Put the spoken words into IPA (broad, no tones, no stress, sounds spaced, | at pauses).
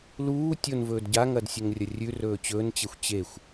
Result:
l uː tʲ o n v ɵː d ɟ a ŋ ɐ d sʲ ɵ ŋ rʲ ɐ rʲ ʉ r ɵː t͡ɕ ɵː n t͡ɕ e xʷ t͡ɕ e xʷ